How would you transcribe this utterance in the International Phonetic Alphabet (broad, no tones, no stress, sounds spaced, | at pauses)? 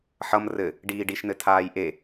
ħ ʌ m r ɘ | ɖ iː ɖ i ʃ n ɘ tʰ aː j ʔ e